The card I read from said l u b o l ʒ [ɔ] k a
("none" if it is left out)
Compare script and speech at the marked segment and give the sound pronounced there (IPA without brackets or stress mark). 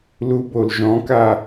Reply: ɔ̃